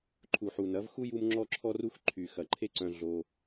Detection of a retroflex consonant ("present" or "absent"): absent